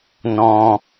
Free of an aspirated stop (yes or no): yes